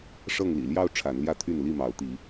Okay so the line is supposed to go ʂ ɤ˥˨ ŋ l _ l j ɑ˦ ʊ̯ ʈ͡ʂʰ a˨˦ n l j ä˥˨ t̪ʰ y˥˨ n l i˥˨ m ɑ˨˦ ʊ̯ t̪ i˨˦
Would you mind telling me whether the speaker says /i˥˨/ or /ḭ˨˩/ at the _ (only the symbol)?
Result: ḭ˨˩